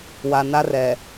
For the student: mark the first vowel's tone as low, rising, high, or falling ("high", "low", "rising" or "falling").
low